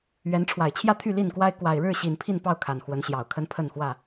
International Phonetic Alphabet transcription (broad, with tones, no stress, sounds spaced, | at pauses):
ɥ ɛ˨˦ n ʈ͡ʂʰ w a˨˩ ɪ̯ t͡ɕʰ j ä˥˨ t̪ʰ y˥˨ l i˥˨ n k w a˦ ɪ̯ k w a˨˩ ɪ̯ ɻ ɻ̩˥˨ ɕ i˨˩ n pʰ i˥˨ n p ɑ˥˨ ʊ̯ kʰ a˨˩ n x w ə˨˦ n ɕ j ɑ˨˩ ʊ̯ kʰ ə˦ n pʰ ə˥˨ n x w ä˥˨